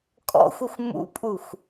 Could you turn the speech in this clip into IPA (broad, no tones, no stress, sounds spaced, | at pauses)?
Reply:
kʼ ɔ̰ xʷ ɘ xʷ m ṵ pʼ u xʷ